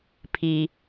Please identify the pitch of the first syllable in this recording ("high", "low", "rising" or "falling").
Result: low